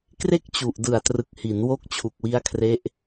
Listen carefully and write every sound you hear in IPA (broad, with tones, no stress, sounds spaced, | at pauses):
k r e˥˩ k̚ t͡ɕ u˨˩ ʔ d ɯ˨˩ a̯ t r ɯ˨˩ k̚ h i˩˦ n w o˦˥ k̚ t͡ɕʰ u˨˩ k̚ w i˦˥ a̯ kʰ r e˦˥ ʔ